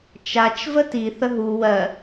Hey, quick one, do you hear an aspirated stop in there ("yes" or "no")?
no